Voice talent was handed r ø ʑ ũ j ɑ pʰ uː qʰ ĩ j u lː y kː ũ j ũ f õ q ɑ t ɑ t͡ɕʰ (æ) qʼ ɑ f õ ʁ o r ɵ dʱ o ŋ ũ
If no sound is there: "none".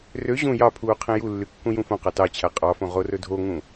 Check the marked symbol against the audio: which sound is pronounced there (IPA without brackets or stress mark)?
æ